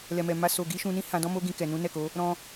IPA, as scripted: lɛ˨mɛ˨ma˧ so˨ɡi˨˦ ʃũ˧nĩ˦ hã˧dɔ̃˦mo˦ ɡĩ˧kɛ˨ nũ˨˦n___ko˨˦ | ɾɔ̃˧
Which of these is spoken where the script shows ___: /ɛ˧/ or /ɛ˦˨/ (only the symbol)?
ɛ˦˨